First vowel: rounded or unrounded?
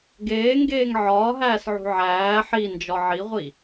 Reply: unrounded